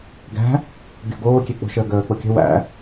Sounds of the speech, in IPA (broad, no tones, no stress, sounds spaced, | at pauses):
ɡ æ̤ | ɡʲ ɔ̤ ɡ oː kʲ e k͡p o̤ ʃ əː ɡ əː k͡p o kʲ ə̤ w æ̰